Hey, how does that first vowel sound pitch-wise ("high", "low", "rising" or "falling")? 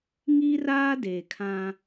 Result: high